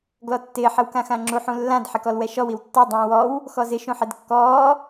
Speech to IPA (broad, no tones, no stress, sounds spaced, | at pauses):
ɡ l ɔ tː ɪː ħ ɪ w k ã x ã ŋ͡ǁ u ħ ũ lː ã d ħ ɪ k ɔ l w ɛ ʃ ɔ w i w tː ɔ dˤ ũː w ɔ w | x ɔ z ɪ ʃ ũ ħ ɪ d kː ɔː